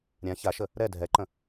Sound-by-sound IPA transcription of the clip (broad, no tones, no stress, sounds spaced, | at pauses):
ɾʲ ã ç a ʃ ə | ɾ ɛ dʱ ɛ ǃ ə̃